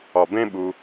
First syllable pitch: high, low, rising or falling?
low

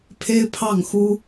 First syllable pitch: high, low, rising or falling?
high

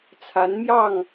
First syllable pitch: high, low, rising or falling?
rising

